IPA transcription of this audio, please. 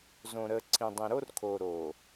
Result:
z õ˨ ɾ ə˨ ǀʰ ĩ˨ dˤ ĩ˨ ɾ o˦ r kʰ o˨ ɾ o˨

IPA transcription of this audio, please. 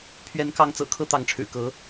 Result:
pʰ ɥ ɛ˧˥ n k ɑ˧˥ ŋ t͡s ɤ̰˨˩ kʰ ɤ˥ t̪ ɑ˧˥ ŋ ʈ͡ʂʰ ɻ̩˨˩ k ɤ˧˥

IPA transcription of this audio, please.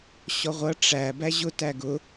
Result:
ɕ ɔ ʁʷ ʌ ʈ͡ʂ æ b æ ʑ ʊ t æ ɡ ʊ

